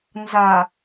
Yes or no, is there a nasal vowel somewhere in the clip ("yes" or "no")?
no